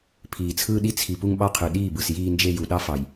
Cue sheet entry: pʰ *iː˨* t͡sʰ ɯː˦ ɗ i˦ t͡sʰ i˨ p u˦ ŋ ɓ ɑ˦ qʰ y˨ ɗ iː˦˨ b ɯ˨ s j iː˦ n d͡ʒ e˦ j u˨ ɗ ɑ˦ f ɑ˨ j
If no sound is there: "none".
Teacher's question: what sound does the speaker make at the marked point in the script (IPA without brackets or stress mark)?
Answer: iː˨